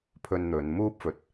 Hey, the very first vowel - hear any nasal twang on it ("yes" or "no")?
no